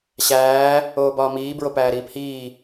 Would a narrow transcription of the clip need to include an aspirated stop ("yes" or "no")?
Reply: no